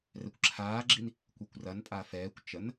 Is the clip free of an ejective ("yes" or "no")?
no